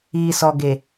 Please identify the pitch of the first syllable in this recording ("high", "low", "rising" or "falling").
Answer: low